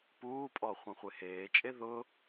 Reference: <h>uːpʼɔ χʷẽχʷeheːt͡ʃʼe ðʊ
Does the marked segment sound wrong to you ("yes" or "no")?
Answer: yes